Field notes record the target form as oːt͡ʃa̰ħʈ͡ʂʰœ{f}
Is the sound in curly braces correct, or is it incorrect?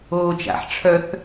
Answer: incorrect